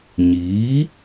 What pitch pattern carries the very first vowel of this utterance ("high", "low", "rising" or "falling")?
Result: rising